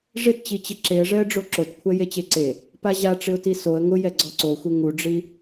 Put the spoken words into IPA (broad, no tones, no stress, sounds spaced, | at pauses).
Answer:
ʐ ɪ t t͡ɕ i t͡ɕ ɪ ǁ e ə̯ ʐ ɛ ə̯ ɖ͡ʐ o ǁ o t kʷʰ ɛ j e t͡ɕ e ǀ e | p a ʑ a ʈ͡ʂ ɪ ʊ̯ t i s o ə̯ ŋ ʊ j ɛ ɡ͡ǀ ɔ ǀ o xʷ e ŋ u ɖ͡ʐ i